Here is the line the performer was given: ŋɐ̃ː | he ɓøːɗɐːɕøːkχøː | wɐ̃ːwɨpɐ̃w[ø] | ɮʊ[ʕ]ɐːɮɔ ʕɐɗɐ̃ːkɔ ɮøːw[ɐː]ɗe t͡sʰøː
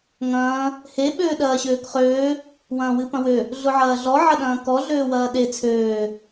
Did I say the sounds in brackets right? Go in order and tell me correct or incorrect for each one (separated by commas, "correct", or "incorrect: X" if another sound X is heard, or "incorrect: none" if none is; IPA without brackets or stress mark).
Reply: correct, correct, correct